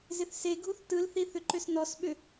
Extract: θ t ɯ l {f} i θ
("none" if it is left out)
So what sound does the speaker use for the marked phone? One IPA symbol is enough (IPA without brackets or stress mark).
θ